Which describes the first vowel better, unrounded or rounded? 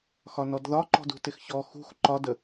rounded